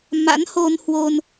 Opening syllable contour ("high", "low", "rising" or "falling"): rising